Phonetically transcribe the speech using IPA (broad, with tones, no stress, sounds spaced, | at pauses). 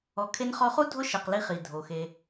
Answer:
ɔ˨ kʰ e˧ n χ ɔ˧ χ u˦ dʱ ʊ˦ ʃ e˨ q l i˧ χ i˨ dʱ o˨ x e˧